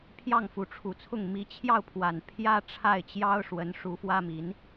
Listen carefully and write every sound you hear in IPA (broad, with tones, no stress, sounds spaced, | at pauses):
pʰ j ɑ˥˩ ŋ f u˧˥ ʈ͡ʂʰ u˨˩ t͡sʰ ʊ˥˩ ŋ m i˧˥ t͡ɕʰ j ɑ˥˩ ʊ̯ pʰ w a˨˩ n pʰ j ä˥ ʈ͡ʂʰ a˥˩ ɪ̯ t͡ɕ j ɑ˥ ʊ̯ ʂ w ə˧˥ n ʂ u˧˥ f w ä˥ m i˧˥ n